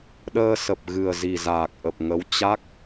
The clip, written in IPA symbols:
ɗ əː˧ s ə˨˩ p̚ ɣ ɨ˨˩ ə̯ z i˨˩ z aː˨˩ k̚ ʔ ə˨˩ p̚ ŋ ə˨˦ w t͡ɕ a˦˥ k̚

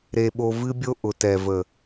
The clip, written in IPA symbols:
ɾ e˧ ɓ o˧ v ɨ˦ bʲ o˦ ʔ ʊ˨ t ɛ˨ v ə˨

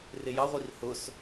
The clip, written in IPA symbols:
r ɪ j ɑ ʁʷ i r h ʊ s

